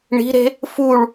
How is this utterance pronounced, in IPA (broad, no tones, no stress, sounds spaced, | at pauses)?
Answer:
ɳ i̤ ɾ e̤ | f u ɭ